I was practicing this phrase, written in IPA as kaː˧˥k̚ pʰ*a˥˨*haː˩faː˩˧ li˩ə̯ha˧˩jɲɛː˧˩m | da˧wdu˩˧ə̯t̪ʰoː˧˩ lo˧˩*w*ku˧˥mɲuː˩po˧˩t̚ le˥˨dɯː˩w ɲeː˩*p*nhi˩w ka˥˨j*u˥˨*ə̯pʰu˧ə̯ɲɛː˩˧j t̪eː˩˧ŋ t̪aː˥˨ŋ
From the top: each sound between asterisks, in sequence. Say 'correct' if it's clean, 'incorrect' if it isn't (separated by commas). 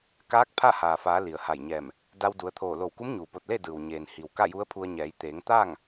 correct, correct, incorrect, incorrect